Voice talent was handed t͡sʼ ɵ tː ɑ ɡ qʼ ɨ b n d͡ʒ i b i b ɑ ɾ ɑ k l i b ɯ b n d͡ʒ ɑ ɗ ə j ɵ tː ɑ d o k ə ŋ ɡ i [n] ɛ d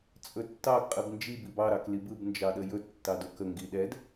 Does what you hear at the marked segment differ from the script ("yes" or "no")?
yes